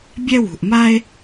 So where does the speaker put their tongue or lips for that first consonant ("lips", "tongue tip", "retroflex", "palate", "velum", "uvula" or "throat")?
lips